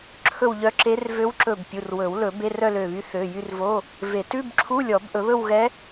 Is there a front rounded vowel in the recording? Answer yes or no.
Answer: yes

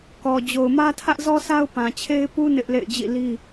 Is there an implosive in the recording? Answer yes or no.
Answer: no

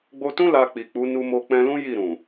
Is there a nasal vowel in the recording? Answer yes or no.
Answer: yes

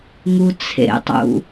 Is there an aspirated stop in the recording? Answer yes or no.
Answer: yes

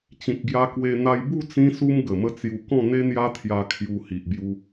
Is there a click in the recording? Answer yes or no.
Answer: no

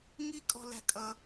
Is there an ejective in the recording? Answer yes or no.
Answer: yes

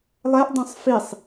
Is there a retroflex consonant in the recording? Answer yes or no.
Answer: no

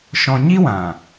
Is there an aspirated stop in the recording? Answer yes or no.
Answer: no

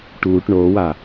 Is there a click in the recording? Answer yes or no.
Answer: no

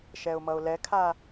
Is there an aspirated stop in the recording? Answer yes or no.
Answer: yes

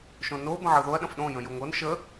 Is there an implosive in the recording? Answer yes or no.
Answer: yes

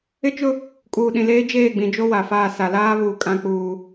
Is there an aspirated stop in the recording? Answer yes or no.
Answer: no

